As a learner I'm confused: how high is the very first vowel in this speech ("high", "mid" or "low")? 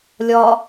low